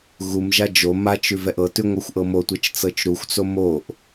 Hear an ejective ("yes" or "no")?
no